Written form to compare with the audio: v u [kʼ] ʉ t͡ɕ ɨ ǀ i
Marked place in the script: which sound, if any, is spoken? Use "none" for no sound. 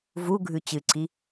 ɡʱ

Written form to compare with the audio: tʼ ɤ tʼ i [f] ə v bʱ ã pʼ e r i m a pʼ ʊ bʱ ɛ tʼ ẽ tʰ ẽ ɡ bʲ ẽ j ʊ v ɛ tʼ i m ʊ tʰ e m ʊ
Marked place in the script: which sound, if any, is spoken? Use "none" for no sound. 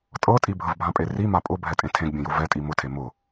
bʱ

